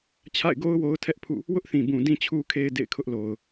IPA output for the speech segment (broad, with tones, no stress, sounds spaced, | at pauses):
t͡ɕʰ a̰˦˨ ɪ̯ ɡ o˦ ʊ̯ w o˦ ʊ̯ tʰ ɛ˦ ʔ pʰ ṵ˦˨ | w ʊ˦ ʔ θ ĩ˨ b ũ˨ d ĩ˨ t͡ɕʰ u˨ kʰ e˨ ɪ̯ d ḛ˦˨ ɪ̯ kʰ ʊ˦ ʔ l o˨ ʊ̯